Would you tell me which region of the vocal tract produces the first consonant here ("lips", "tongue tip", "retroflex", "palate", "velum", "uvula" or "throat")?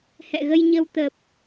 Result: throat